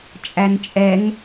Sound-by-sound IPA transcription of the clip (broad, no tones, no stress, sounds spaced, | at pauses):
t͡ʃʼ æ n t͡ʃʼ ɛ ŋ